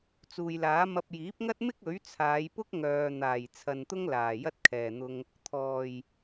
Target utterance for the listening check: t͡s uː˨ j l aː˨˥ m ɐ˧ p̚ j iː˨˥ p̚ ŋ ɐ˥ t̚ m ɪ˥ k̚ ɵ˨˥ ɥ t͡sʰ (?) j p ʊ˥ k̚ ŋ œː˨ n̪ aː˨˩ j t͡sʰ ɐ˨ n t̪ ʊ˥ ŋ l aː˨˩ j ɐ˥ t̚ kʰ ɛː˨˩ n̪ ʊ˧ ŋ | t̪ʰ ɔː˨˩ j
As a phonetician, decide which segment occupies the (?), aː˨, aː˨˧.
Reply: aː˨˧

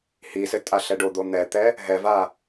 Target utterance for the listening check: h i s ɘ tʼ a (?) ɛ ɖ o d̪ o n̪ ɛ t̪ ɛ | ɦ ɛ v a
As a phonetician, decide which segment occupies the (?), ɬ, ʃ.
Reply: ɬ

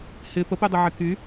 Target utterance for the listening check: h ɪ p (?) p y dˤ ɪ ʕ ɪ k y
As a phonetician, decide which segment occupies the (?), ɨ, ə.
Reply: ə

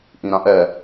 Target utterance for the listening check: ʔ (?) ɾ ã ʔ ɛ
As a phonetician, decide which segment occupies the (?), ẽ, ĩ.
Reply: ĩ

